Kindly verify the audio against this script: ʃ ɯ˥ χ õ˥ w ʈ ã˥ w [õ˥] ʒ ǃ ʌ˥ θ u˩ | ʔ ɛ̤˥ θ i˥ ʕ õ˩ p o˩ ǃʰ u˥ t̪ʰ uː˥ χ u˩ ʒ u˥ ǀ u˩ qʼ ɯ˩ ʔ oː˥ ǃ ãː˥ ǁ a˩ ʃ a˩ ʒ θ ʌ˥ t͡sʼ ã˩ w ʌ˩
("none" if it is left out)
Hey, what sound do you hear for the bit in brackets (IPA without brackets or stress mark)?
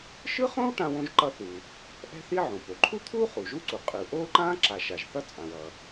õ˥